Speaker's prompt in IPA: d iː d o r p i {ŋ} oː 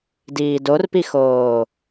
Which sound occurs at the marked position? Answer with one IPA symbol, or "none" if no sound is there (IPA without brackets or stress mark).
x